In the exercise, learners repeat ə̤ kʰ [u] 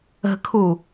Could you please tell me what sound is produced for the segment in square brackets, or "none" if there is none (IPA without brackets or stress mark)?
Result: u